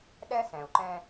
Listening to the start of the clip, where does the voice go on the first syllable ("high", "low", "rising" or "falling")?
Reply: high